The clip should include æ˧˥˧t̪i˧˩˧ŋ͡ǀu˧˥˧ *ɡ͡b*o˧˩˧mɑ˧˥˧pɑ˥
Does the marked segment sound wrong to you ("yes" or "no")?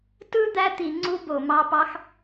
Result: yes